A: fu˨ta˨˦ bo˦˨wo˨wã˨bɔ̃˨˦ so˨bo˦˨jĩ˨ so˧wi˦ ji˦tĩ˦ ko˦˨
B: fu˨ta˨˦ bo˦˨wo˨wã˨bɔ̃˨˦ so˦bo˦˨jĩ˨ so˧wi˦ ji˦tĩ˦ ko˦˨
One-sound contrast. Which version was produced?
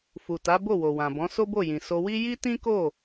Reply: B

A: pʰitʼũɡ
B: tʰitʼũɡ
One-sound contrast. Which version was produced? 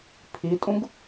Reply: A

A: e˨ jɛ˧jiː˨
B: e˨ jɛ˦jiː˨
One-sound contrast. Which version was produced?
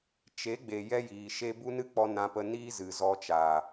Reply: B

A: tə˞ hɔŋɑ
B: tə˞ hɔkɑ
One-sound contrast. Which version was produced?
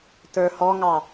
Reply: A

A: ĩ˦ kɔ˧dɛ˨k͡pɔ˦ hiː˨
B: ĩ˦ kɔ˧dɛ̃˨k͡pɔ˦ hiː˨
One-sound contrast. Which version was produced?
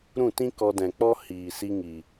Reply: B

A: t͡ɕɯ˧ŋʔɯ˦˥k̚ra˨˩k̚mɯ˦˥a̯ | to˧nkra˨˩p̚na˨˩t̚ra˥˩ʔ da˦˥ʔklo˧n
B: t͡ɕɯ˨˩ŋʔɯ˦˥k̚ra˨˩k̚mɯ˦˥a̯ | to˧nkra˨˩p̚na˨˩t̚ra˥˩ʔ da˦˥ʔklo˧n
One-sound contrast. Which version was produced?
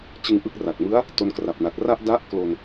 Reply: A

